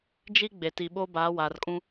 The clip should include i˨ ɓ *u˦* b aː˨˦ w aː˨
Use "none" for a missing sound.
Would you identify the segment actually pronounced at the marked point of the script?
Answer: o˦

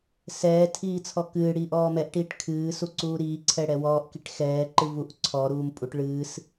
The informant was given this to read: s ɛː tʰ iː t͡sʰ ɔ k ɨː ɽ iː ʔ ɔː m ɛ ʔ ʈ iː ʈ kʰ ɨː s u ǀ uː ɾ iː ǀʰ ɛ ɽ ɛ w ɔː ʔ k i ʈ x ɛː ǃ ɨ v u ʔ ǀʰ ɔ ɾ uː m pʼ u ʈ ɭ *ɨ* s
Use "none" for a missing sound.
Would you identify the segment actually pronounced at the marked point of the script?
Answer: ɨː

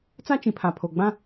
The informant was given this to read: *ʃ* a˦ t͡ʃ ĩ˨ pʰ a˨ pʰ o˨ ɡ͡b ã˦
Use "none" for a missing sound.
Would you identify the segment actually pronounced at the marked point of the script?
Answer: t͡s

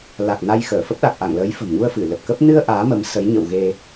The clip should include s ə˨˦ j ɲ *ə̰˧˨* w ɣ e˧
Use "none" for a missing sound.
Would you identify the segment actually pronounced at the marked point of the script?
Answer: ə̰˧˨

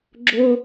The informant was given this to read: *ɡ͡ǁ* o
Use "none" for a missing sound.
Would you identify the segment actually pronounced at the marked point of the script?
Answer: ɡ͡ǁ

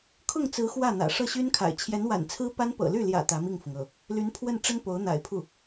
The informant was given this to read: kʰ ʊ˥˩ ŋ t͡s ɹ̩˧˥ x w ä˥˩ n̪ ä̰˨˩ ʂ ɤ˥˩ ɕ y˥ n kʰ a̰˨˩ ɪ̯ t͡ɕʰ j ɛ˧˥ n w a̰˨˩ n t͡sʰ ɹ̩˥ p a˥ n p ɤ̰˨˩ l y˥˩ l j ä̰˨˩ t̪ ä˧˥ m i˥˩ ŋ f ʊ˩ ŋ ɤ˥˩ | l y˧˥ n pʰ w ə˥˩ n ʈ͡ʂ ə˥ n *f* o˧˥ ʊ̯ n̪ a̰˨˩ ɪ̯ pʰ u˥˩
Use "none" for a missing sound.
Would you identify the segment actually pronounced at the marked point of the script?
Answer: p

